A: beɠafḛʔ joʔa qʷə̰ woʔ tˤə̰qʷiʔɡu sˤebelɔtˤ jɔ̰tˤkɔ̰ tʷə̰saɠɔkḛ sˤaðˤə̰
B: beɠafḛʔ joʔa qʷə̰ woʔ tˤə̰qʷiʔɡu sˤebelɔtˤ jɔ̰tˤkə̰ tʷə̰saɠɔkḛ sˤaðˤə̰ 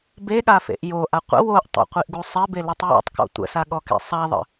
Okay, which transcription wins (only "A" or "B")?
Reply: A